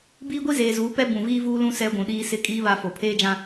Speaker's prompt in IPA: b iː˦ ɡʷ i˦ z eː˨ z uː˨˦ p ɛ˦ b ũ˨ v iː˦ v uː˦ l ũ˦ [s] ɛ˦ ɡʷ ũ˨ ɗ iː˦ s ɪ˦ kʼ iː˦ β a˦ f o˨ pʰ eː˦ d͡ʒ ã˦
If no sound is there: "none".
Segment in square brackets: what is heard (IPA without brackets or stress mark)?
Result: s